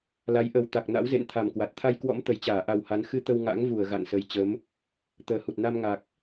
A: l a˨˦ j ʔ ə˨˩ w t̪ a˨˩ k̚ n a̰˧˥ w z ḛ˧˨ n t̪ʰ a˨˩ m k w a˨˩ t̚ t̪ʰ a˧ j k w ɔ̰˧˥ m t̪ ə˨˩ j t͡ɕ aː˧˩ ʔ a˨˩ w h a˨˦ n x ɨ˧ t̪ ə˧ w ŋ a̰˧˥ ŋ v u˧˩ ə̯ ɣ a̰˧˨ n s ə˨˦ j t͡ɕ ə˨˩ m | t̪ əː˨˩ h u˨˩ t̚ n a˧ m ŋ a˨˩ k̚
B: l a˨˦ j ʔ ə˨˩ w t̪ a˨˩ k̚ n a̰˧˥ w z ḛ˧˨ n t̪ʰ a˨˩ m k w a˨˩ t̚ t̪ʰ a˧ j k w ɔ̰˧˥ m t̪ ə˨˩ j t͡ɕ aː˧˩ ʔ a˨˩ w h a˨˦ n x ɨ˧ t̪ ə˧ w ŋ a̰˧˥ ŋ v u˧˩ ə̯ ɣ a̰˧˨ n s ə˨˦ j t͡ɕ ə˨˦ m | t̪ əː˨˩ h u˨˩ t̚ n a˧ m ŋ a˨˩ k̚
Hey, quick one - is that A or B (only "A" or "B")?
B